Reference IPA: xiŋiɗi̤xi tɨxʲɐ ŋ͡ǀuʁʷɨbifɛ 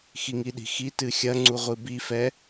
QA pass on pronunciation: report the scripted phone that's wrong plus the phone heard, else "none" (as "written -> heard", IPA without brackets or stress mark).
none